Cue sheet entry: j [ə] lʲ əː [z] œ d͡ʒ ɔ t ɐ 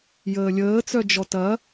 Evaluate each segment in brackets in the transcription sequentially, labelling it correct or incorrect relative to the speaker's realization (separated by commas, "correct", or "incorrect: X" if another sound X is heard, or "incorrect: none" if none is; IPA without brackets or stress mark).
incorrect: əː, incorrect: t͡s